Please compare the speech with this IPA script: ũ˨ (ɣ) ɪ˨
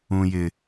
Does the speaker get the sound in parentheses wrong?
yes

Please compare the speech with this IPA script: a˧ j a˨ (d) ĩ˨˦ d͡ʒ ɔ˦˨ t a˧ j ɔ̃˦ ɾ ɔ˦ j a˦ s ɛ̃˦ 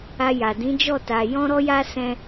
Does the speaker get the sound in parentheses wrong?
no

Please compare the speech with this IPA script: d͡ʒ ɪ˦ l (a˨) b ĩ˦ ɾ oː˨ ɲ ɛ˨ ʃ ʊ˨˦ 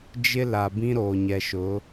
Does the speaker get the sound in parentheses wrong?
no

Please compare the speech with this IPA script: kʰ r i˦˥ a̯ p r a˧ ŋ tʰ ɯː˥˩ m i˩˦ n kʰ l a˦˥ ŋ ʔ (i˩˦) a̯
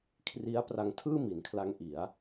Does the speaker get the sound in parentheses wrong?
no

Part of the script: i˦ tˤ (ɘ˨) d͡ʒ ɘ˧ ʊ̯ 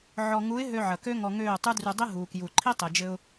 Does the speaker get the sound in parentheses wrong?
no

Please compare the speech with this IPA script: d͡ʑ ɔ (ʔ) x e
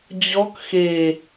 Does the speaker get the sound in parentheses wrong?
yes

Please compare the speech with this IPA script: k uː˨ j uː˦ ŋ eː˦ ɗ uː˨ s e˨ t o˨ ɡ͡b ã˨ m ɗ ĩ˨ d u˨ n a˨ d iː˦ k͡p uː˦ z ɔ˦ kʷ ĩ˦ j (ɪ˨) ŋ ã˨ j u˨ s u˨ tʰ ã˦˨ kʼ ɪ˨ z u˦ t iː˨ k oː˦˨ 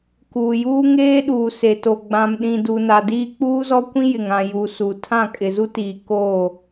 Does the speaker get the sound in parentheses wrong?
no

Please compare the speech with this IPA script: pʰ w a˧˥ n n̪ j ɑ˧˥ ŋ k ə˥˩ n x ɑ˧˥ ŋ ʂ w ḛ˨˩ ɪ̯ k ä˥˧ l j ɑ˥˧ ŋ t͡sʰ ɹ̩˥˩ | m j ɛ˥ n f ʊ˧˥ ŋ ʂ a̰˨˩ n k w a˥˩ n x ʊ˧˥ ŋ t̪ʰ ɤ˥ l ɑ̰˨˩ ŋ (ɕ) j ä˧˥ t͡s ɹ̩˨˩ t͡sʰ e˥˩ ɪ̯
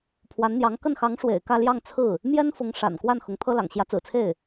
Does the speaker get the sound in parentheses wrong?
no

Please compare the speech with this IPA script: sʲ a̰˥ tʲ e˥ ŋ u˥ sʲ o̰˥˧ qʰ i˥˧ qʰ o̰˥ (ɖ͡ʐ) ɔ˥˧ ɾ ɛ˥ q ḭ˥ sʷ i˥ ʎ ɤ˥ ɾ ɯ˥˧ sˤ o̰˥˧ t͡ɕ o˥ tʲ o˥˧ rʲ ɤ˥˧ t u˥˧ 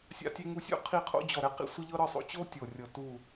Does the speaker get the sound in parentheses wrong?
yes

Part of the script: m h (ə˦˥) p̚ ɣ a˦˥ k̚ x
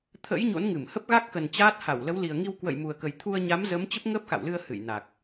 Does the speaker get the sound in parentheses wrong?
no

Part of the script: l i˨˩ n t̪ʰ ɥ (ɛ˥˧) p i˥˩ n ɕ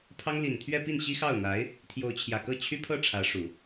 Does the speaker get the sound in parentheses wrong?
no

